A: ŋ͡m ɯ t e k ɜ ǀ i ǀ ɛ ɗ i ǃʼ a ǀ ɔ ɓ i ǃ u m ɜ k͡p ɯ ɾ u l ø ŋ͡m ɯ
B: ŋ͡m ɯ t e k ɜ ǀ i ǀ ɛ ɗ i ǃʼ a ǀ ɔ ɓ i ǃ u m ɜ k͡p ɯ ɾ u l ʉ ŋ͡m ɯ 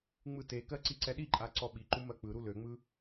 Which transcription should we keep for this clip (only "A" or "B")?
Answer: A